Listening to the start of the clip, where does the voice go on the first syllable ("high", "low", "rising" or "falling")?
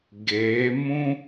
rising